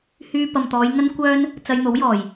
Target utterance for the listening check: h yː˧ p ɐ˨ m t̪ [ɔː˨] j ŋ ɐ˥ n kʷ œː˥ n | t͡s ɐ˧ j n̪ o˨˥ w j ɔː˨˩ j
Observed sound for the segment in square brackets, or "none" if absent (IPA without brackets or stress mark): ɔː˨˧